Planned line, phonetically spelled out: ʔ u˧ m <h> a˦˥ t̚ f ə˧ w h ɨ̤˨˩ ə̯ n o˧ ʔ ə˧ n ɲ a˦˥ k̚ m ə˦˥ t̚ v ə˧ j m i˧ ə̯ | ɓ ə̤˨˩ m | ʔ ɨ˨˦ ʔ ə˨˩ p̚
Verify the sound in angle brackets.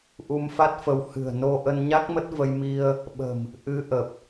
incorrect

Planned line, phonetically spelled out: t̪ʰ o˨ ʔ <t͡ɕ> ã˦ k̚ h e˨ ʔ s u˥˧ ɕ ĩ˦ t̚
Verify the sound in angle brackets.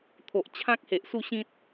incorrect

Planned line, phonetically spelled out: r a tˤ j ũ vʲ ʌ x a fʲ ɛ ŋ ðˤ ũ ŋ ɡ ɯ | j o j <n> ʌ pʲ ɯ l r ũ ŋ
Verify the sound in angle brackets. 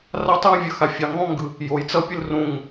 incorrect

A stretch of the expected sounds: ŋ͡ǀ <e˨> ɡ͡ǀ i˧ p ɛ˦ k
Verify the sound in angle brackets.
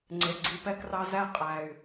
correct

